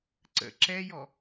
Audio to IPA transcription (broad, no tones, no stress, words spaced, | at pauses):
ǀə̰ ǁɛjɔ